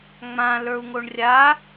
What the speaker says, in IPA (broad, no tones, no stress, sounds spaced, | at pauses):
ŋ͡m ã l ə˞ u̯ ŋ o ɳ rʲ a